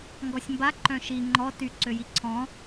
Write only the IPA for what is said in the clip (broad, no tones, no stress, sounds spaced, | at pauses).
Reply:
ŋ ɡ ɔ sʲ m b a ǃ œ̃ ʃ i ŋ͡ǃ ɔ t y ǀ ø j i ǀʰ ɔ̃